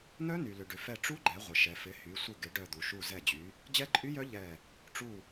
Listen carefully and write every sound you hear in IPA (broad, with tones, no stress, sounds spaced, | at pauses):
n œ˦˥ n y˩ l ʏ˩ ɖ ʏ˩ f ɛ˧˩ ʈ͡ʂ u˦˥ ɡ͡ǃ ɛ˩˧ ʁʷ ɪ˩ ʃ ɛ˩ f ɪ˩˧ h y˩˧ sʷ ɪ˧˩ ɡ ɪ˩˧ ɖ œ˧˩ d̪ u˩ ʃ u˧˩ z ɛ˧˩ d͡ʑ y˩˧ | d͡ʑ ɛ˦˥ ǃʼ y˦˥ j œ˦˥ ʎ ɛ˧˩ | ʈ͡ʂ u˧˩